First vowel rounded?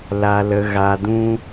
no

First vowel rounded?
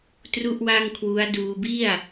yes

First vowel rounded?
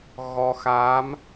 yes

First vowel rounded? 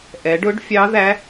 no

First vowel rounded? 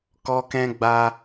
yes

